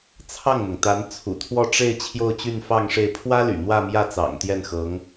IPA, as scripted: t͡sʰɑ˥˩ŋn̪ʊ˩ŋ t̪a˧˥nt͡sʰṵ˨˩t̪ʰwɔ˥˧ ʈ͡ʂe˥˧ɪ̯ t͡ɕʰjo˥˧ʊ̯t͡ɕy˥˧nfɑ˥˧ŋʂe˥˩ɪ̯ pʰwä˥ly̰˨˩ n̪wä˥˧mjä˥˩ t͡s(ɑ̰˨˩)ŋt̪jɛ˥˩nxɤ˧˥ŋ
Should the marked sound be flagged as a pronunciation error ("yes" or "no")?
no